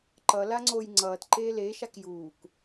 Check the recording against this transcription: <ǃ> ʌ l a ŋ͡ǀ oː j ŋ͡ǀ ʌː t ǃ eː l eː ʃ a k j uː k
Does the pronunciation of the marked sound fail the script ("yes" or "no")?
no